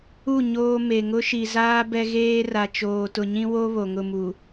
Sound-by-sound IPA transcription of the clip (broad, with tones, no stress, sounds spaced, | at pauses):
u˦˨ ɲ oː˦ m e˨ ŋ ʊ˦ ʃ i˨ z aː˦ b ɛ˦ ɣ eː˦ r a˨ t͡ʃ oː˨ t ʊ˨ ɲ ĩ˦ w o˦ β o˨ ŋ ʊ˦˨ m u˨